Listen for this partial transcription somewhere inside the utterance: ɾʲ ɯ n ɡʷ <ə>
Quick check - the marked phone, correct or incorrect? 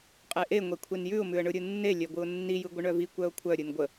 correct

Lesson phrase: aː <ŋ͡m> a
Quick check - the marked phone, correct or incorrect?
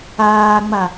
correct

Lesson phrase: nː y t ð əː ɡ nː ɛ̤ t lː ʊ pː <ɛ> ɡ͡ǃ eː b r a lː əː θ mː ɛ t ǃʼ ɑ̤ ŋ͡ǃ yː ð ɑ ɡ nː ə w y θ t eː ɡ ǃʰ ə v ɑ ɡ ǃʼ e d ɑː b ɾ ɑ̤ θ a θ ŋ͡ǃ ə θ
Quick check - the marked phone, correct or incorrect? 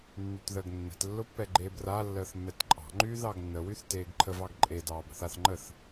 correct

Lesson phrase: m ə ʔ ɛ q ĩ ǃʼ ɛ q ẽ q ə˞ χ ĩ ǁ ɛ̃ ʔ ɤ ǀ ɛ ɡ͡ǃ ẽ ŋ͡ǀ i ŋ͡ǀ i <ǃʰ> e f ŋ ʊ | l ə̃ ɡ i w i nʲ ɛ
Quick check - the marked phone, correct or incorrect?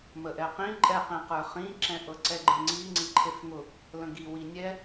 correct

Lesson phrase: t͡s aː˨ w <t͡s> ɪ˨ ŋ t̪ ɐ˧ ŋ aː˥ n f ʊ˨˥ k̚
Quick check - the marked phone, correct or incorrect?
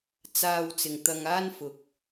correct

